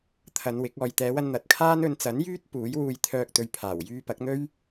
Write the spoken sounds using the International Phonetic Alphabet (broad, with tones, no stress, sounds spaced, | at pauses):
t̪ʰ ɐ˨˧ n w ɪ˨˥ k̚ ɔː˨ j t̪ ɛː˨˧ w ɐ˧ n n̪ ɐ˨˥ t̚ kʰ aː˥ n ɵ˨˧ n t͡s ɐ˨˥ n j yː˥ t̚ p uː˨˥ j w uː˧ j t̪ʰ œː˧ k̚ t̪ ɵ˨˧ ɥ pʰ aː˨˩ w j yː˧ p ɐ˨˥ k̚ n̪ ɵ˥ ɥ